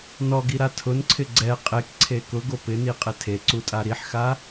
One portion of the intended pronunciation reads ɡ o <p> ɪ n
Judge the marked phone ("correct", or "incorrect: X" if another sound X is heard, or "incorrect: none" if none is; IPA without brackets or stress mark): correct